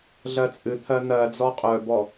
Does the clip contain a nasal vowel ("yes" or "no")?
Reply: no